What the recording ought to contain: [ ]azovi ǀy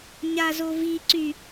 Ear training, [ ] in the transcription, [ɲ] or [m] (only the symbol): ɲ